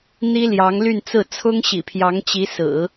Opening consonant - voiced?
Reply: yes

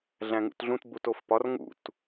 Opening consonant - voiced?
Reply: yes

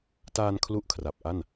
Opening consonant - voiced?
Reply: no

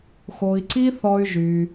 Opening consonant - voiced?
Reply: no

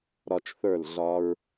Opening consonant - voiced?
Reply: yes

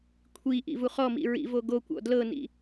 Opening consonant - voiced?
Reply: no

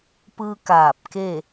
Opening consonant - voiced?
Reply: no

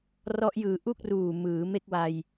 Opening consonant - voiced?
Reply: yes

